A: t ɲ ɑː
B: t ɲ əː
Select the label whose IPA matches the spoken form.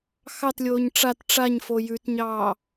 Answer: A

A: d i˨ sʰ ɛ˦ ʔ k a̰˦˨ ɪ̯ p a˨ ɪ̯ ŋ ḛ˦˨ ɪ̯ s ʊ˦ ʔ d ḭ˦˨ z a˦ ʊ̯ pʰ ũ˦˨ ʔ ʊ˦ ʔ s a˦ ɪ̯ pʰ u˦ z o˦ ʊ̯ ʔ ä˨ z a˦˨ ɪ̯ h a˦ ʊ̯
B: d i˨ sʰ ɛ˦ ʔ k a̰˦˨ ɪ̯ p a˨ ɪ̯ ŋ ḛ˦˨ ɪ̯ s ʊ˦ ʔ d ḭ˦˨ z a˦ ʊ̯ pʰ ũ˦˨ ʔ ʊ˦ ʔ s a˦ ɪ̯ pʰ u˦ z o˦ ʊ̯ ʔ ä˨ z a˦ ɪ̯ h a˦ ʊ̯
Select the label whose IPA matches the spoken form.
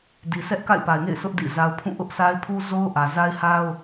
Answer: B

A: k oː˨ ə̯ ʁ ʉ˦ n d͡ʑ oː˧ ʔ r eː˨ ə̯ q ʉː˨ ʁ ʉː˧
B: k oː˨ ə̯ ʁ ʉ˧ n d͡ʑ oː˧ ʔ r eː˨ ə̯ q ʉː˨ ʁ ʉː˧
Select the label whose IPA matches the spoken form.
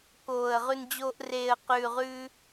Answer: B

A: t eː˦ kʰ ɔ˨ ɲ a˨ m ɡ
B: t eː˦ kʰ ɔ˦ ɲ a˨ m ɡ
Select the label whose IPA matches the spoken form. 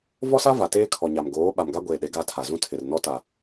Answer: A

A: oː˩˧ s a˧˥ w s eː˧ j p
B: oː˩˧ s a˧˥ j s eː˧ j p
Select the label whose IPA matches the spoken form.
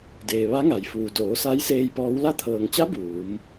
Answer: B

